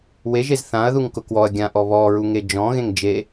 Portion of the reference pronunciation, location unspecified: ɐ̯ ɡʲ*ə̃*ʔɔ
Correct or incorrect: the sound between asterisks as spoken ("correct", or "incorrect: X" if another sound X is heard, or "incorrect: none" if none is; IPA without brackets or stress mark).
incorrect: ã